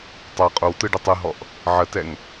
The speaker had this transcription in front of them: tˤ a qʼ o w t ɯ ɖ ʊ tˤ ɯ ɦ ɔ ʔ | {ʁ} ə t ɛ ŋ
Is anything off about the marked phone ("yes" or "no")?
yes